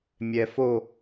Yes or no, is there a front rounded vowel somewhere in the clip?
no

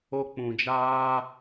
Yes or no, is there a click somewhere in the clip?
no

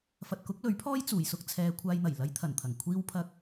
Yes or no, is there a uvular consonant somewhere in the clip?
no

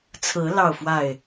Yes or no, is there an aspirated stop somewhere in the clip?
yes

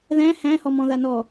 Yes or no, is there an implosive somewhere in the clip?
no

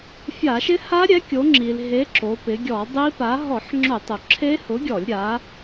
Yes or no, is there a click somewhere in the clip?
yes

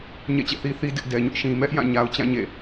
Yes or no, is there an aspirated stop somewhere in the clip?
no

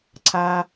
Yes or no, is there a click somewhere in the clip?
yes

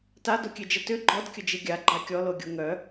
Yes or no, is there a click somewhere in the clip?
yes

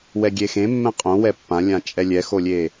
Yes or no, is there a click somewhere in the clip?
no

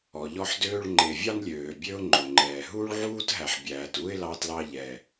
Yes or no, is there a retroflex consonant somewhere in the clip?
yes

